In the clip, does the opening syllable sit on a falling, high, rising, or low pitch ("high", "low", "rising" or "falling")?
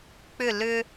falling